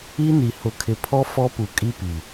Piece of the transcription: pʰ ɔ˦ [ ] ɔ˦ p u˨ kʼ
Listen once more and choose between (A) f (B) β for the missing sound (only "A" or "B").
A